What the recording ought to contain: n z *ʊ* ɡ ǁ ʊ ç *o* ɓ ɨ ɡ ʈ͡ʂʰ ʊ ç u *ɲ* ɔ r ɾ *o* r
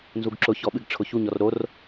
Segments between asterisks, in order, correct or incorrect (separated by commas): incorrect, incorrect, correct, correct